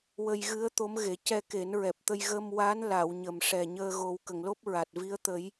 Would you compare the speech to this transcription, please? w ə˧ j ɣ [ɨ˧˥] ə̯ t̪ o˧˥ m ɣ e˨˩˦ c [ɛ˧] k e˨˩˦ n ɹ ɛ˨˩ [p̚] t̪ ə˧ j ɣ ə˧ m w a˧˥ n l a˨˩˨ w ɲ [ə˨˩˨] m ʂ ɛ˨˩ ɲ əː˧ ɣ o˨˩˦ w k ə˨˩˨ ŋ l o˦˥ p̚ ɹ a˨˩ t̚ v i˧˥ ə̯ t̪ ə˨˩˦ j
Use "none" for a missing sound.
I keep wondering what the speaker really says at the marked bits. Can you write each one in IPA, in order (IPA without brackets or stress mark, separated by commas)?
ɨ˧˥, ɛ˧, p̚, ə˨˩